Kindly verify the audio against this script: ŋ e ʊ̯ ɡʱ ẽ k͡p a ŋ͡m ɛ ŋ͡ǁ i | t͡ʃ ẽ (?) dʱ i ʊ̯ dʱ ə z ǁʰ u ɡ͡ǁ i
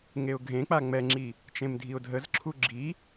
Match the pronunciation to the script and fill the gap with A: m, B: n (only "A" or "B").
A